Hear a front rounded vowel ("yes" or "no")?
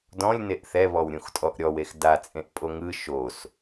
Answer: no